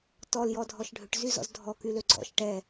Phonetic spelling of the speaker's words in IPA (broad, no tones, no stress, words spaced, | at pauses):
tɔljɔdʱɔʃ ɖʱʏʈzyzɔ̰z dʱɔkylø ɡ͡ǀɔ̰ʃ ʈɛ